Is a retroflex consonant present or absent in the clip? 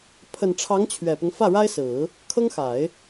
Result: present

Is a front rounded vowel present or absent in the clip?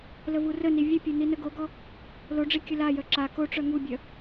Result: present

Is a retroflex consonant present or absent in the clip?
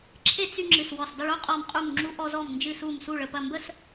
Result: present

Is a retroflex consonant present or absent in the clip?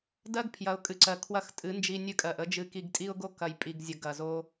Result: absent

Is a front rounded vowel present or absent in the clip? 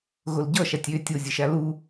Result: present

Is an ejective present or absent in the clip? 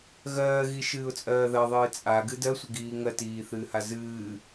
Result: present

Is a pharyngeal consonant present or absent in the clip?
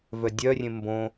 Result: absent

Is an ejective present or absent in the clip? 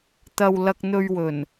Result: absent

